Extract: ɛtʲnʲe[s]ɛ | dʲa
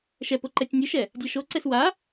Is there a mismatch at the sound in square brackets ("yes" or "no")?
yes